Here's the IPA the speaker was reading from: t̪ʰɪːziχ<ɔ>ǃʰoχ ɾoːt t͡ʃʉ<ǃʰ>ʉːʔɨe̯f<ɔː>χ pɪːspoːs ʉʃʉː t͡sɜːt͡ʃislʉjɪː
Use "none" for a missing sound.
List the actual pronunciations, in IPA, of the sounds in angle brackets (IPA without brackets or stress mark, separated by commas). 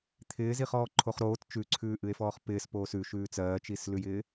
ɔː, ǀʰ, ɔː